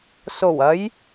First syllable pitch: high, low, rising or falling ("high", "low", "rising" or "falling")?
low